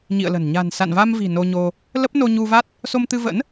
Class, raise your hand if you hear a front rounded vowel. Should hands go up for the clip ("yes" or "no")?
no